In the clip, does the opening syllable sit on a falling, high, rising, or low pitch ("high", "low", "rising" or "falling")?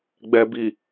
low